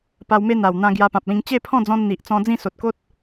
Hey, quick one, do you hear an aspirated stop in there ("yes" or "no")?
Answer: yes